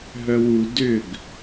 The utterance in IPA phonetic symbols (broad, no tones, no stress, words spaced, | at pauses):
ɦœwu dʏɡ